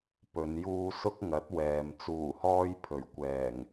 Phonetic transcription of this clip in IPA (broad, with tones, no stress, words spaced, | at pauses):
pɵ˨˧njuː˥ sʊ˥k̚ŋɐ˨˥t̚ wɛː˨m t͡suː˨˩hɔː˧j pʰɵ˨˩ɥkʷɛː˨˩ŋ